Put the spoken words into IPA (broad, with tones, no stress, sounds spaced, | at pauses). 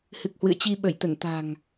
h ɨ˨˩ k̚ h w ɨ̰˧˨ ə̯ t͡ɕ i˧ ɓ ə˧˩ j t̪ ə˧˩ n t̪ a̤˨˩ ŋ